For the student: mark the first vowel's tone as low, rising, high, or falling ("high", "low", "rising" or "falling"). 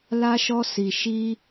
high